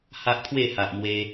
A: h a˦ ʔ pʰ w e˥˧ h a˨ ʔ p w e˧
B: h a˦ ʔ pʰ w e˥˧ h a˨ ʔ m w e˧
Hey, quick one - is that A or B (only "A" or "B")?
B